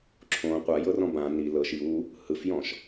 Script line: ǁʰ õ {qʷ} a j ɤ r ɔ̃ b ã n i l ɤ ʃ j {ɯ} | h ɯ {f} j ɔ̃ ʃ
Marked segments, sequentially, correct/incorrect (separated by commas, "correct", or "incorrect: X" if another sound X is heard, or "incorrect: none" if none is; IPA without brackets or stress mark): correct, incorrect: u, correct